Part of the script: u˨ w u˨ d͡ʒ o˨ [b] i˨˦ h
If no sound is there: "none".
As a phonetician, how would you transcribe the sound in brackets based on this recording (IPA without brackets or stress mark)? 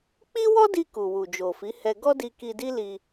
f